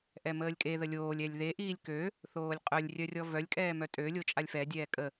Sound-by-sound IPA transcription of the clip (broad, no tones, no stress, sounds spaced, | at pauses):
ʔ ɛ m əː lʲ kʼ e ð ə lʲ oː lʲ ɛ lʲ ð e ʔ iː lʲ k ø | θ oː lʲ qʼ œ lʲ rʲ œ rʲ ɔ v œ lʲ kʼ ɛː m œ tʼ ø lʲ o t͡ʃʼ a lʲ f ɛ dʲ ɛː kʼ ə